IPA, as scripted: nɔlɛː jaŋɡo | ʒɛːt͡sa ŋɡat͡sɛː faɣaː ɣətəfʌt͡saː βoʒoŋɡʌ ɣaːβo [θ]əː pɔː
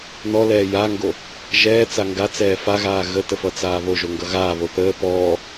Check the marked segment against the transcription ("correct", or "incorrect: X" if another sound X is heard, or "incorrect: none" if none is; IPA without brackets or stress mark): correct